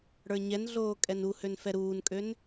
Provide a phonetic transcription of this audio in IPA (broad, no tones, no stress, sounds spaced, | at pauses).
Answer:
ɽ ə˞ ɲ ɛ n ɮ oː kʼ ɛ n u h ø n f ɛ ɾ uː n kʼ ø n